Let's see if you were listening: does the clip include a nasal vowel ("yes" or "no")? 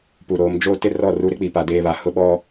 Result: no